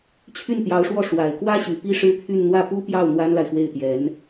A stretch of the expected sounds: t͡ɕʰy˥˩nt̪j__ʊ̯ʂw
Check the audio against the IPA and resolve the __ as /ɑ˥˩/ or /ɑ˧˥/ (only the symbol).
ɑ˧˥